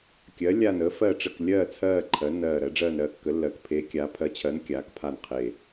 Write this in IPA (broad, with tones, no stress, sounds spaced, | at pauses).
kʲ ɜ˩˧ lʲ aː˨˩ n əː˩˧ f ɜ˨˩ ʈ͡ʂ ə˨˩ k lʲ ɜː˨˩ t͡sʰ ɜː˨˩ ǃʰ ɜ˩˧ nː ɜː˨˩ ɾ ɜ˩˧ ɖ͡ʐ ɜː˨˩ n ɾ ɜː˩˧ kː ə˩˧ lː ɜ˩˧ k pʰ eː˩˧ kʲ aː˩˧ pʰ ɜ˩˧ t͡ɕʰ ɜ˩˧ n kʲ aː˩˧ k pʰ a˨˩ n qʰ eː˨˩